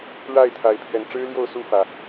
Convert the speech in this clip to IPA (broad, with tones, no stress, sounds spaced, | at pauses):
ɻ a˥˨ ɪ̯ t̪ʰ a˨˦ ɪ̯ pʰ ɥ ɛ˨˦ n ʈ͡ʂ ɻ̩˦ l j o˥˨ ʊ̯ s u˥˨ f ä˩